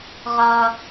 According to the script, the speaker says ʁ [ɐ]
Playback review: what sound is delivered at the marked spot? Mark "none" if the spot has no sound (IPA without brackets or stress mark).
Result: ɐ